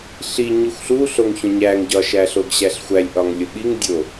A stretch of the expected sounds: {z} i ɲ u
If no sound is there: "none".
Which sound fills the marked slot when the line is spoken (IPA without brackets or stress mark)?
ɬ